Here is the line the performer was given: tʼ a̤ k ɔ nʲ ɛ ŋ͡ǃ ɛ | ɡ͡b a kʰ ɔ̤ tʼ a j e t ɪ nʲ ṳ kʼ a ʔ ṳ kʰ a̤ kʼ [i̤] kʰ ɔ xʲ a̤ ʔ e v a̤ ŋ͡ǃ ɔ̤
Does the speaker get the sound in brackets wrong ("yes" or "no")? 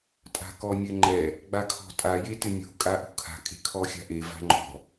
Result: yes